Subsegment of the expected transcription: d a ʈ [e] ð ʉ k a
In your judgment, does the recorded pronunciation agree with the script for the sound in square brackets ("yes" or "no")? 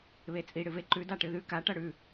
no